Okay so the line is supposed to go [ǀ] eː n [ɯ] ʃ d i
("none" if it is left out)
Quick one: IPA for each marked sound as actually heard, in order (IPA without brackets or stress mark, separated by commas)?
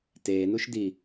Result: t, u